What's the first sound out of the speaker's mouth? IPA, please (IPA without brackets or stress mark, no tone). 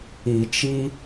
i